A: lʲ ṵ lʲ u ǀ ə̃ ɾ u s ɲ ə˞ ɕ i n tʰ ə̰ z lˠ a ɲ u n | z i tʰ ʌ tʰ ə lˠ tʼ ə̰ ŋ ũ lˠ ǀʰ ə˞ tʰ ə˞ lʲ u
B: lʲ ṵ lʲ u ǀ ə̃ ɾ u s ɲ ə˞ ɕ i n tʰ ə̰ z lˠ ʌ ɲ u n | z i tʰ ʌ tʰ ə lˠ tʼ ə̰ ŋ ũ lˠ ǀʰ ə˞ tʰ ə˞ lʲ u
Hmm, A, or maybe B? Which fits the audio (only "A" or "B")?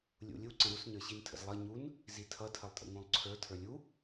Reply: B